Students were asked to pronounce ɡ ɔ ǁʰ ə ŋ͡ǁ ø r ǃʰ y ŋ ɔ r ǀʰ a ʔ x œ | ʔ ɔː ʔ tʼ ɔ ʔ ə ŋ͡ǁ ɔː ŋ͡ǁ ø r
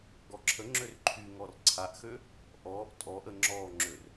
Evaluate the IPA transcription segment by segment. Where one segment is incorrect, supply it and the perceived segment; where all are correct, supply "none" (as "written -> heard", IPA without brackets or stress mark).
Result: œ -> ø